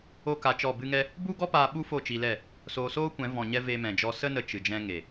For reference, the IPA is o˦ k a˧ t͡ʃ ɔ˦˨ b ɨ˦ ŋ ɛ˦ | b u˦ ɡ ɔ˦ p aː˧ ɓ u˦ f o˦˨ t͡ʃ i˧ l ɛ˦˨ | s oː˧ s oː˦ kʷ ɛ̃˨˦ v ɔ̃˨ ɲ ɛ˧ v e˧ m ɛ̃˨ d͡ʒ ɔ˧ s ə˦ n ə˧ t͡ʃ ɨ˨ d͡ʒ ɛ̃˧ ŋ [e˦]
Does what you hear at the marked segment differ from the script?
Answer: yes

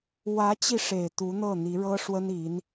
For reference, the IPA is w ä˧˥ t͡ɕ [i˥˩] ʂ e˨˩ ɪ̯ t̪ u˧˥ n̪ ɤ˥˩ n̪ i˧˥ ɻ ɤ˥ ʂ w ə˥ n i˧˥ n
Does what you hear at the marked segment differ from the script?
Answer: yes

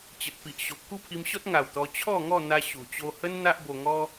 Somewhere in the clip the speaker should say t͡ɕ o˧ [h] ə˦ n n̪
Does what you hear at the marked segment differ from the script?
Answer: no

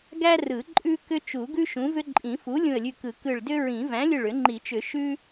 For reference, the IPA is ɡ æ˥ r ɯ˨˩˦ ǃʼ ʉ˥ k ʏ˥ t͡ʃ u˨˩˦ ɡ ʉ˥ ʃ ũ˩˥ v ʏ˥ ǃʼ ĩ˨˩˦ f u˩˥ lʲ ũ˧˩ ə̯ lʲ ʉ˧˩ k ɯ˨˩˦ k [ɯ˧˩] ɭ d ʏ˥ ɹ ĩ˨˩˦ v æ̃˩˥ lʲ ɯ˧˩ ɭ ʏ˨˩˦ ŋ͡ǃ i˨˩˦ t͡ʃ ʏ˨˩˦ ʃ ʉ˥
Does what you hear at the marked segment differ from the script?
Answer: no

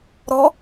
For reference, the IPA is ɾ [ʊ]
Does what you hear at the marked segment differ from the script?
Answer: yes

